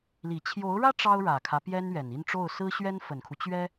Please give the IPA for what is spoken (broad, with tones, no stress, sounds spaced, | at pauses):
l i˨˩ t͡ɕʰ j o˧˥ ʊ̯ ɻ ä˥ ʈ͡ʂ ɑ˥ ʊ̯ ɻ ä˨˩ kʰ ä˦ p j ɛ˥ n ɥ ɛ˨˩ n i˥˧ n ʈ͡ʂ o˥˩ ʊ̯ s ɹ̩˥ ɕ ɥ ɛ˥ n f ə˨˩ n kʰ u˦ t͡ɕ ɥ ɛ˥